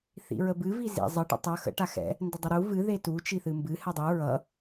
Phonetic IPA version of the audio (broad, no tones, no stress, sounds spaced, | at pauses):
θ ḭ ɹ ə b ɨ v i z ḭ zˤ ə ʈ ə̰ tˤ ʌ x ə̰ ʈ a x ɛ̰ | n d ə dˤ ə ɾ u v ɨ ð e t u t͡ʃ i θ ɨ m b ɨ h ɛ dˤ u ɹ ʌ